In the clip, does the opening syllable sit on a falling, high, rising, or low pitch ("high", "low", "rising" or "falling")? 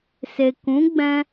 low